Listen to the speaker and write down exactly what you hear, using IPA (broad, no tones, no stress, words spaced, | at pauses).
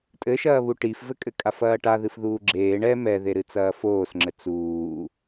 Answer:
tʼɘʃɐːβu ʈifvɘkʼɘ kʼafɐːʈaðɨf ðuːɡ͡ǁeː ɳɛ mɛðeɾɨ t͡sɐːfoːsŋ͡ǁɘ t͡suː